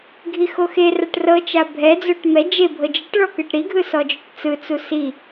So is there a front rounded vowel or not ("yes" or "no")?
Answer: no